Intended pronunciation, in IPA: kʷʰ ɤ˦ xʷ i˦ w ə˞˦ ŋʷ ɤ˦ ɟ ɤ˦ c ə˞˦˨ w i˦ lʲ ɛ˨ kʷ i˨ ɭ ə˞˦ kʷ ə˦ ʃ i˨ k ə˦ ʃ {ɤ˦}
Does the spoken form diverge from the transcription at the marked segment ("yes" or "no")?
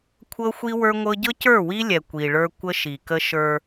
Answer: yes